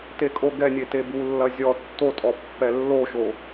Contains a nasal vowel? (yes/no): no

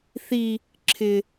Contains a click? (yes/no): yes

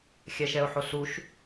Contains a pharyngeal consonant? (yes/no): yes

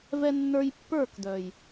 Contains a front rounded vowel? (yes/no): yes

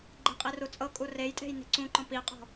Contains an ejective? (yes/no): yes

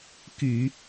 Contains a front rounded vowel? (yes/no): yes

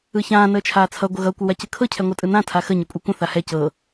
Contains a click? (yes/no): no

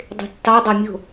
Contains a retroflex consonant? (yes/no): no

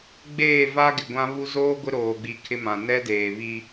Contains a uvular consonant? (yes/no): no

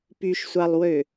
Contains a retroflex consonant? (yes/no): no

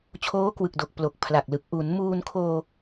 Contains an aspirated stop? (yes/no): yes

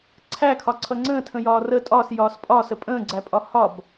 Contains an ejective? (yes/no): yes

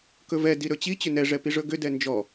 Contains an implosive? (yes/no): no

